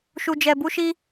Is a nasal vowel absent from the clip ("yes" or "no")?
yes